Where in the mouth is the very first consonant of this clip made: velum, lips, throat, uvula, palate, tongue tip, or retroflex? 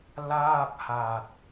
tongue tip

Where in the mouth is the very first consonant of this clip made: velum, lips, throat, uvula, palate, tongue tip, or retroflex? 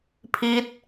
lips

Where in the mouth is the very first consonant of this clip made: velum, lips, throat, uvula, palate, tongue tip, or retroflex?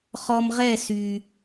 uvula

